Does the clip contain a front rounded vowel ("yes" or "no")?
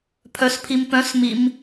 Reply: yes